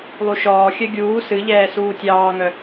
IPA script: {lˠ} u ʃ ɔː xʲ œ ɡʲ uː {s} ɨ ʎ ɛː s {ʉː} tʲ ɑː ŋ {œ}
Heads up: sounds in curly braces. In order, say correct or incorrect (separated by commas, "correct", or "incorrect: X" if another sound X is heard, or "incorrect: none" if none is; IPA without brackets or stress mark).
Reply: correct, correct, incorrect: uː, correct